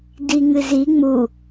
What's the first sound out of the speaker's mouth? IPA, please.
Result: d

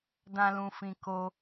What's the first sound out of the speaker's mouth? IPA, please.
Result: d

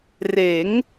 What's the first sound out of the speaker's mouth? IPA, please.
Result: r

